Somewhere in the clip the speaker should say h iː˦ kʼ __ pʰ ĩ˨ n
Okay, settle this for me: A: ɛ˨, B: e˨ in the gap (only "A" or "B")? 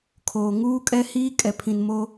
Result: A